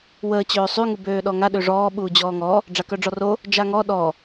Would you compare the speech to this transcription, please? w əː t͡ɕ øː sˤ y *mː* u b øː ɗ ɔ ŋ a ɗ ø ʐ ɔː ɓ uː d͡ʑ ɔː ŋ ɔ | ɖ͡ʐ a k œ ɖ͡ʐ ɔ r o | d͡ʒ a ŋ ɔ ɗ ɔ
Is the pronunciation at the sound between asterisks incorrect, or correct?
incorrect: ŋ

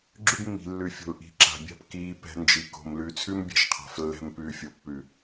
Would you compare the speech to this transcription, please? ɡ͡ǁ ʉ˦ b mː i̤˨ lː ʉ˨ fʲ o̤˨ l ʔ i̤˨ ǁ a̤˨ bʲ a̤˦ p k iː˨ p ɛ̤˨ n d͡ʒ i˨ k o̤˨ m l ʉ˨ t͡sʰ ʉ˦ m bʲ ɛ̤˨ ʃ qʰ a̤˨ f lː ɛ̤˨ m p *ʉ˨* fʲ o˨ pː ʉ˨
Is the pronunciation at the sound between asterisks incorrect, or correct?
incorrect: ʉː˨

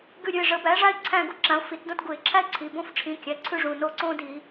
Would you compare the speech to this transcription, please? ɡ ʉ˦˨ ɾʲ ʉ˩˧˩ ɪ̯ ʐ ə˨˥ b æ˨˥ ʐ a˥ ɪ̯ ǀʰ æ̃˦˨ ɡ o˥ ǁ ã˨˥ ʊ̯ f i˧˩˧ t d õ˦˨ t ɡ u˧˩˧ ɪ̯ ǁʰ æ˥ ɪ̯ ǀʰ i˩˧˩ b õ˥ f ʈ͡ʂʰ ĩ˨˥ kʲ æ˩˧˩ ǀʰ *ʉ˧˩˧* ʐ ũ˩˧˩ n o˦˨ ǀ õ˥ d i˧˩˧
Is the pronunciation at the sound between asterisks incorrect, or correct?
incorrect: ʉ˥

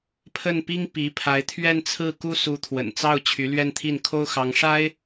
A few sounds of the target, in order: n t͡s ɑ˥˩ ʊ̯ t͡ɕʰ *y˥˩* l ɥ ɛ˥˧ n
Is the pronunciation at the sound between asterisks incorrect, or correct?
incorrect: y˧˥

